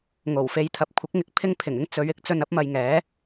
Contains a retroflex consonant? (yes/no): no